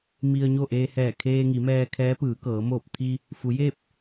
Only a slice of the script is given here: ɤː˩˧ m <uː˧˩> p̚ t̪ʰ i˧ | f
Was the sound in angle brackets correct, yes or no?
no